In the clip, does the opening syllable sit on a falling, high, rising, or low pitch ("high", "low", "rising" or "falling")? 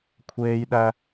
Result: high